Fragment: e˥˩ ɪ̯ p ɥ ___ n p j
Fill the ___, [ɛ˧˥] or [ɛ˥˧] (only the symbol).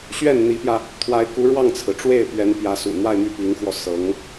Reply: ɛ˧˥